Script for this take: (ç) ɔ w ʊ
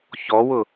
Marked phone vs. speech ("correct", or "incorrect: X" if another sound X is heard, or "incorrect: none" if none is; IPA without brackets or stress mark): correct